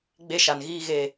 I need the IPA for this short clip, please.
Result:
ɡ͡b e˦ ʃ a˨ n ɣ iː˦ ɣ eː˨

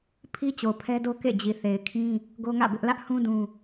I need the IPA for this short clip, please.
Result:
pʰ i˦ t͡ɕ o˨ pʰ ɛ˦ d o˦ k ḛ˦˨ d͡ʑ i˨ θ e˨ ɪ̯ kʰ ĩ˦ | ɡ o˦ ŋ ä̰˦˨ b ɪ˦ ʔ l ä˦ ʔ h ũ˦ d ũ˦

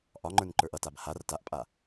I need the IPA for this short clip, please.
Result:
ʔ ɒ ŋ͡ǃ ə˞ n ǃ ə˞ ʔ ʌ t a b h a r t a ʔ pʼ a

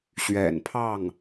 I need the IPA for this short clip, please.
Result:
ɕ ɥ ɛ̰˨˩ n pʰ ɑ˥˩ ŋ

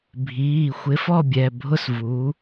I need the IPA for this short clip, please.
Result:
bʱ iː˩˧˩ xʷ ɪ˨˥ f ɔ˥˨ bʲ ɛ˩˧˩ bʱ ʊ˥˨ s v uː˨˥

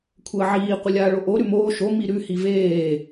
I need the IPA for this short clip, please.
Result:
kʷʰ əː ʕ iː qʷ ə lʲ aː ɭ o ʔ o ɾ ʉ m oː ʃ o m i ɾ ʉ h i v eː

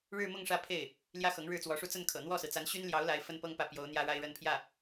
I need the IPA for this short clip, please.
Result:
ɻ ɻ̩˥˧ m ʊ˥˧ ŋ ʂ ä˥˧ pʰ e˥˩ ɪ̯ | l j ä˥˩ x ɤ˧˥ ŋ ɻ ɻ̩˥˩ t͡s w ɔ˧˥ ʂ u˥˧ t͡s ə˥˩ n kʰ ɤ̰˨˩ n̪ w ɔ˥˩ s ɹ̩˩ t͡s a˧˥ n ɕ y˥ n l j ɑ˧˥ ʊ̯ l a˧˥ ɪ̯ f ə˥ n p ɤ˥ ŋ p ä˥˩ p j o˧˥ ʊ̯ n̪ j ä˥ ɻ a˥ ɪ̯ ɻ ə˥˧ n pʰ j ä˥˩

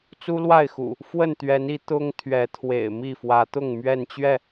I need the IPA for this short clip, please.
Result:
t͡s u˦ l w a˥˨ ɪ̯ x ṵ˨˩ | f w ə˥˨ n t̪ ɥ ɛ˨˦ n i˨˦ t̪ ʊ˦ ŋ t̪ʰ ɥ ɛ˨˦ t̪ʰ w ḛ˨˩ ɪ̯ m i˥˨ f w ä˨˦ t̪ ʊ˥˨ ŋ m ɥ ɛ˥˨ n t͡ɕ ɥ ɛ˥˨

